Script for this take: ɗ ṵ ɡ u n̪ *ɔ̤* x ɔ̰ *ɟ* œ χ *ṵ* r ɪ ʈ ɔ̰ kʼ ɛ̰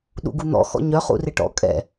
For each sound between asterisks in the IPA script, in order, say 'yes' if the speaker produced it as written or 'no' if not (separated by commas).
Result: no, no, yes